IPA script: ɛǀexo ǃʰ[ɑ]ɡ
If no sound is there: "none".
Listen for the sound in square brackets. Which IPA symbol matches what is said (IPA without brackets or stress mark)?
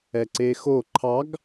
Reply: ɑ